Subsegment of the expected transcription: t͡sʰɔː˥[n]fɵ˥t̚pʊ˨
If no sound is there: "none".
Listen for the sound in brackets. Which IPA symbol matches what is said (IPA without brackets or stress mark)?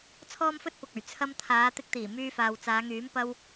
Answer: m